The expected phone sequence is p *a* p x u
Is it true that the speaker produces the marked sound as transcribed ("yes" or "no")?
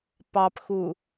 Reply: no